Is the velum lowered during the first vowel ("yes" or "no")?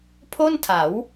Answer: no